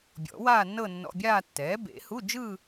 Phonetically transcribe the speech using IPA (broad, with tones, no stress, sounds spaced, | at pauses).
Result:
bʲ ɔ̰˨˩˦ w aː˥˧ nː ɤ˥˧ nː ɔ̰˧˥˧ bʲ aː˥˧ tː ɛː˩˥ b ḛ˨˩˦ h u˧˥˧ d͡ʒ ɯ˥˧